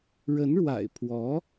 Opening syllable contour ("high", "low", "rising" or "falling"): rising